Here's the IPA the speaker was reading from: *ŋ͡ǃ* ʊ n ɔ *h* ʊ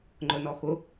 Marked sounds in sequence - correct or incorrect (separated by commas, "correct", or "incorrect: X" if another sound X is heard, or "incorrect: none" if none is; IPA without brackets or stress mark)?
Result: correct, incorrect: x